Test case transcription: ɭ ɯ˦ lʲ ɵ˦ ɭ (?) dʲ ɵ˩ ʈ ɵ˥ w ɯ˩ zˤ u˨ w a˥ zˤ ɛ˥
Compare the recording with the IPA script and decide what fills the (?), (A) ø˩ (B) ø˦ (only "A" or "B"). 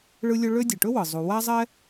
B